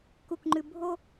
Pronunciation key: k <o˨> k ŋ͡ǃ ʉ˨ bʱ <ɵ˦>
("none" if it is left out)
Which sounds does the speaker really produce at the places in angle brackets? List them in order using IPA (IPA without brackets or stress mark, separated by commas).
u˨, o˦